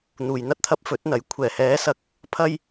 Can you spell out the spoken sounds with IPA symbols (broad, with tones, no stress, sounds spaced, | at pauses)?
n̪ uː˨ j n̪ ɐ˥ t̚ t̪ʰ ɐ˧ p̚ f ɵ˨˥ t̚ n̪ ɐ˨˥ j kʷʰ ɛː˨˩ h ɛː˨˧ s ɐ˨ k̚ | pʰ ɐ˥ j